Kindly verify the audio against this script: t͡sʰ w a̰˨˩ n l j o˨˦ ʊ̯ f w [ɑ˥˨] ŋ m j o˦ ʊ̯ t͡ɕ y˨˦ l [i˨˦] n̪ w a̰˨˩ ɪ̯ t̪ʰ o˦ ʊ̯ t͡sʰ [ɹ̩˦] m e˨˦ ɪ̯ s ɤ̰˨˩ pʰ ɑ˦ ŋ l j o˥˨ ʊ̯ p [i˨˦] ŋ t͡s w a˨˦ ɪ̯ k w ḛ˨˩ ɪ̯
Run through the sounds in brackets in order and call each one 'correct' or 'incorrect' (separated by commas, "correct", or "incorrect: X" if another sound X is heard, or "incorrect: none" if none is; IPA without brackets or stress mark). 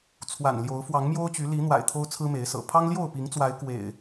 incorrect: ɑ˨˦, correct, correct, correct